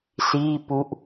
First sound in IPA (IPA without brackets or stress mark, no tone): s